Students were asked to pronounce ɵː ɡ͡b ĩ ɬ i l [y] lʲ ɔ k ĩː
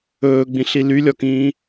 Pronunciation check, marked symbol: correct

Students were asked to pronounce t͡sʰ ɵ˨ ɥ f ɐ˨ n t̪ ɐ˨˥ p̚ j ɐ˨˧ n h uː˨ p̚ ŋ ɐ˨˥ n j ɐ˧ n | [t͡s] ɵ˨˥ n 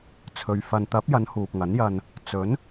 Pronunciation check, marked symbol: correct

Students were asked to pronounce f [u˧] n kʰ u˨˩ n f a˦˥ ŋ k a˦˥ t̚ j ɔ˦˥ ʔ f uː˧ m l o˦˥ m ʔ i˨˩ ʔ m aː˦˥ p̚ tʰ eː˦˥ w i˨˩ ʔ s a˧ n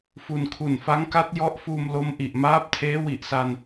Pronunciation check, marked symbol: correct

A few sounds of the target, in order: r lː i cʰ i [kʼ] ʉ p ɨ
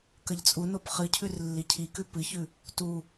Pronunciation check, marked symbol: incorrect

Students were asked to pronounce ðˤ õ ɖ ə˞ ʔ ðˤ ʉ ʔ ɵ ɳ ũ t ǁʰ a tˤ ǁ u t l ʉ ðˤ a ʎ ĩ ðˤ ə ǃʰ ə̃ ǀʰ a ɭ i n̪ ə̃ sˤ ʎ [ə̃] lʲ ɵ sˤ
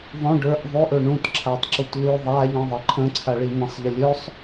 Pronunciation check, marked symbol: incorrect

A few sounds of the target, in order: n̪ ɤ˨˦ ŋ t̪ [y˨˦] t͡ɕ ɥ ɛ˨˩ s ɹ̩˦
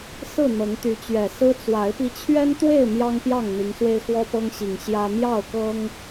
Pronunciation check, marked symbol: correct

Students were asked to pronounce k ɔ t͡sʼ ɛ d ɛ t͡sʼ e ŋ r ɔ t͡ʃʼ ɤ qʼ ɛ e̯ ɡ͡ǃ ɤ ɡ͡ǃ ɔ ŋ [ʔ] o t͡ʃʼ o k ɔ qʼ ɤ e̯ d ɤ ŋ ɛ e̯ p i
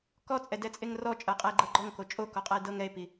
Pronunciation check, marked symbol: incorrect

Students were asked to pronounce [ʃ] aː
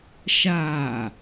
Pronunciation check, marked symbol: correct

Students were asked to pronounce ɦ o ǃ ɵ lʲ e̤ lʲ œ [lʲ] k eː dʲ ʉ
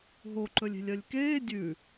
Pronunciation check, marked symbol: correct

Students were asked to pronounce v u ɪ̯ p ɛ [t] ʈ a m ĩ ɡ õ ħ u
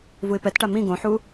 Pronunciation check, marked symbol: correct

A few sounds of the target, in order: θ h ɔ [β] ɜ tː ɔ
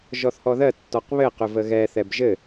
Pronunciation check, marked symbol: incorrect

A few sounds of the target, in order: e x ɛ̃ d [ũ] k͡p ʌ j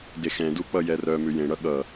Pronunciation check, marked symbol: incorrect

